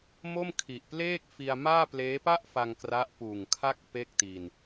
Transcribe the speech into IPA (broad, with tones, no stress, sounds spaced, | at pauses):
m o˥˩ m kʰ i˨˩ ʔ p l eː˥˩ k̚ f i˧ a̯ m aː˥˩ p l eː˦˥ p a˥˩ ʔ f a˧ ŋ k r a˦˥ ʔ p uː˨˩ ŋ kʰ a˥˩ k̚ p e˥˩ k̚ t i˧ n